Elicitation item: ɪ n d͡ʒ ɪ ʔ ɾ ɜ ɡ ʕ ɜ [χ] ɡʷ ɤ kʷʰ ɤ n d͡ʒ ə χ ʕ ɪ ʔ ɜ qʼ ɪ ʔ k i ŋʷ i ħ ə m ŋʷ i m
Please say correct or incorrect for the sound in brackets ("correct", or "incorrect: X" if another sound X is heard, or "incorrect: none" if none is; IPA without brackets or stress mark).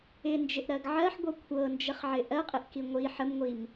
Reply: incorrect: ħ